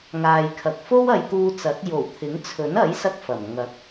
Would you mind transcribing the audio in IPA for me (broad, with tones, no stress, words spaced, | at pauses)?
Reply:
ŋaː˨jkʰɐ˨k̚ fo˥wɐ˨˧jt̪uː˧t͡sɐ˨˥t̚ jo˨˩wt̪ʰɪ˨˥ŋt͡sʰɵ˨˥n ɐ˨˥jsɐ˧k̚ fɐ˨˩m ŋɐ˨˥k̚